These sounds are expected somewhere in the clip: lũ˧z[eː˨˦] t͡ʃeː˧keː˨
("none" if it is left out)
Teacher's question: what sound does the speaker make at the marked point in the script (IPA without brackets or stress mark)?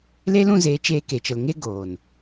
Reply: eː˨˦